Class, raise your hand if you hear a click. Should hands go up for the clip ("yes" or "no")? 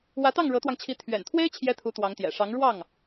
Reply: no